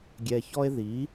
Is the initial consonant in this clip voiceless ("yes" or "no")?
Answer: no